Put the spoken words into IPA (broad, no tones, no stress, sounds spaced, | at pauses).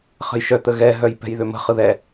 χ ə̤ j ʃ œ t̪ ə ɣ ɛ ɦ œ j p ɛ̤ j ð ʏ m ə̤ χ ɯ ð ɛ